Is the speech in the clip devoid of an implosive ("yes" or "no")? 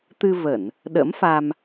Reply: no